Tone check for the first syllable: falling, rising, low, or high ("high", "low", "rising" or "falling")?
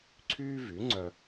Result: high